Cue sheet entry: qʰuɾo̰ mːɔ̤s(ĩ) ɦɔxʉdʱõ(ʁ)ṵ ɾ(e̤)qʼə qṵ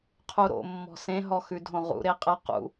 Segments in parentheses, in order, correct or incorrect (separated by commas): incorrect, correct, incorrect